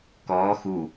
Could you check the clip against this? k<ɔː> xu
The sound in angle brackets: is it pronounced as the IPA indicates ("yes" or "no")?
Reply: yes